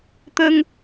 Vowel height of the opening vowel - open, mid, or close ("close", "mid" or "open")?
mid